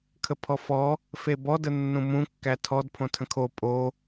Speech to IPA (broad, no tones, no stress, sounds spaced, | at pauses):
kʰ ə pʰ ɔ f ɔ | f e b ɔ d ə nː ũ m ũ kː æ tʰ ɔ d pʰ õ tʰ ə̃ kʰ o pʼ o